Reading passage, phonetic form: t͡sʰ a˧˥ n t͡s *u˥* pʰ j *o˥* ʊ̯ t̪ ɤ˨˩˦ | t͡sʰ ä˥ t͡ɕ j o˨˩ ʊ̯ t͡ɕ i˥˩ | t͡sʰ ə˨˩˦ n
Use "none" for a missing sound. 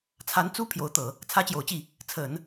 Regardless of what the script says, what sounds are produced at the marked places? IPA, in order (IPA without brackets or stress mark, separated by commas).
u˥, o˧˥